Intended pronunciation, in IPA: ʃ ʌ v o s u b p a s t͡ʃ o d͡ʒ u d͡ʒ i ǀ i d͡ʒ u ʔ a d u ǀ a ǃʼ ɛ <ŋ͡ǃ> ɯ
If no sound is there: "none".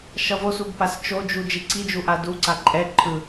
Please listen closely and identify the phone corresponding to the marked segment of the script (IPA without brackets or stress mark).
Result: ǃʰ